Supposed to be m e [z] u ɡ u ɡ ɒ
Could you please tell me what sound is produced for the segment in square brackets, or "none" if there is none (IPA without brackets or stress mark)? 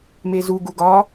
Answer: z